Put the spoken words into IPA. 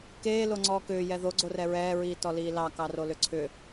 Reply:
k eː l o ŋ͡ǀ ɔː k ʏː j ɛ ð o ɡ͡ǀ o r ɛ ɹ ɛː ɹ iː t ɔ l iː l ɑ k ɑ r o l ʏ ǀʰ ʏ

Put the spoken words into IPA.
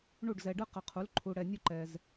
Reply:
ɳ u˥˩ ɖ z ɛ˨ ɖ ɯ˥ q ʌ˨ qʰ u˩˥ l ǃʰ u˨ ɽ ɛ˨ nʲ u˥˧ ǃ ɛ˨ z

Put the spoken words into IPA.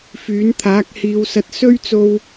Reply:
f yː˨˥ n t̪ʰ aː˨˥ k̚ h iː˨˧ w s ɐ˧ t̚ s ɵ˥ ɥ t͡s o˧ w

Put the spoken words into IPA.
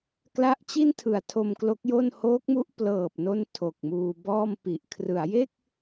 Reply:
k l a˦˥ ʔ t͡ɕ i˥˩ n tʰ ɯ˨˩ a̯ tʰ o˧ m k l o˦˥ k̚ j o˥˩ n h oː˦˥ k̚ m u˦˥ ʔ p l ɤː˨˩ p̚ n o˥˩ n tʰ o˨˩ k̚ m uː˧ b ɔː˥˩ m p i˨˩ ʔ kʰ r ɯ˩˦ a̯ j e˥˩ k̚

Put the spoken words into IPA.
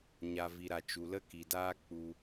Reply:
ɲ a˨ v i˨ ɾ a˨ t͡ʃ u˨ l ə˦ k i˨ d aː˦ k͡p u˧

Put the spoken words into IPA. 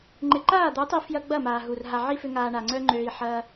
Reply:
ŋ͡ǃ ɪ˨ ǃ aː˦˨ d̪ u˨˦ tˤ i˧ f j ɐ˦ ɡ͡b ɐ˦˨ m aː˨ ɦ u˨ r ɦ a˨ ʕ i˦ f ʏ˧ ŋ aː˨ ɳ a˨ ŋ͡ǀ œ˦ ŋ͡ǃ øː˧ i̯ ħ ɐː˧

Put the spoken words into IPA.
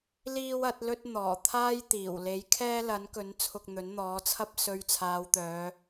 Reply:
l iː˥ w ɐ˨˥ t̚ l ɵ˥ t̚ n̪ ɔː˨˩ t̪ʰ aː˥ j t̪ iː˨˩ w l e˨˥ j kʰ ɛː˥ l ɐ˨˥ n k ɵ˨˥ n t͡sʰ ʊ˧ k̚ n̪ ɵ˨˥ n n̪ ɔː˨˥ t͡sʰ ɐ˥ p̚ s ɵ˧ ɥ t͡sʰ aː˨˧ w t̪ œː˨˧

